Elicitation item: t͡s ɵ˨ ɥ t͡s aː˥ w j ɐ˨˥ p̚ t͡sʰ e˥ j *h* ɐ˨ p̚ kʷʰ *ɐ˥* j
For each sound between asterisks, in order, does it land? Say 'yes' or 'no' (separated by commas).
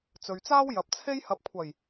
yes, no